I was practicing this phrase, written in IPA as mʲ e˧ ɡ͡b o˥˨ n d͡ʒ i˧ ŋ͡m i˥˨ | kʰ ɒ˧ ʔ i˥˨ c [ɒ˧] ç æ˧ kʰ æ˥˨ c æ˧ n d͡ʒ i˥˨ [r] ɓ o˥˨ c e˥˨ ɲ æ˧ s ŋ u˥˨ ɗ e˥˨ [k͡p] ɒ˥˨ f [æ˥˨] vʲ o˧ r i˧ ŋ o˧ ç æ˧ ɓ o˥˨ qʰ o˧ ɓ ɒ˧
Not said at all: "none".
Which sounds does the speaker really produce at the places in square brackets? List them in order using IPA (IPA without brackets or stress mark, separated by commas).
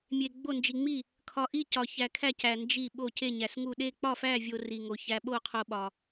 ɒ˧, none, k͡p, æ˥˨